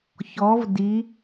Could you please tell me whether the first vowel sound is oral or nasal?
oral